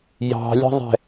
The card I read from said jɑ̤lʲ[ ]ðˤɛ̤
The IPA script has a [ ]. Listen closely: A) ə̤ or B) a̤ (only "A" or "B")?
A